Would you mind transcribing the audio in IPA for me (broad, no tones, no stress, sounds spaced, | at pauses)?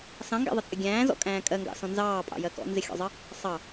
s ɑ̃ ŋ ɡ æ̰ ðˤ ɪ t͡sʼ ɪ ɡʲ æ̃ː z ɔ̰ kʼ æ̃ː kʼ ɜ ŋ ɡ ɑ̰ s ɔ̃ n z ɑː pʼ ɑ̰ j ɜ k ɔ̰ n z ɪ xʲ ɔ̰ zˤ ɜ | sˤ ɑ